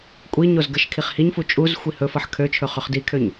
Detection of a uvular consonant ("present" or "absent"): present